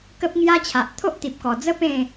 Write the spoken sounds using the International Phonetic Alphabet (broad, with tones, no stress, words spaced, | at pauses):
kə˦p̚ŋja˦t͡ɕʰa˨ʔ t̪ʰo˦ʔt̪i˨p̚kɔ˨˩d͡zə˦ pẽ˥˧